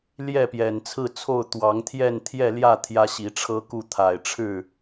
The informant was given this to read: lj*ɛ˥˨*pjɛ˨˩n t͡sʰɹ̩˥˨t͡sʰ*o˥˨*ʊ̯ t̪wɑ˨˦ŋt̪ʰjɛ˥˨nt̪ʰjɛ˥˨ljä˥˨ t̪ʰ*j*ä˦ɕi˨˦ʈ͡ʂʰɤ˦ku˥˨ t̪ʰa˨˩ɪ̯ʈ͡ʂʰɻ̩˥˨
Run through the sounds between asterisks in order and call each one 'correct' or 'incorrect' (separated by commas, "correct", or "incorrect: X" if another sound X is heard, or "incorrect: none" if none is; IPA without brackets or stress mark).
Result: correct, correct, correct